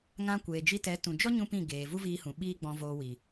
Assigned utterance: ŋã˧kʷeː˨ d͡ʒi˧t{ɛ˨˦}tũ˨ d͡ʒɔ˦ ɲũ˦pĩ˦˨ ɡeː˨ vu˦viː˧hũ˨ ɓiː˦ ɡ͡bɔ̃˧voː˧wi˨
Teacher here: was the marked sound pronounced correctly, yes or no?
yes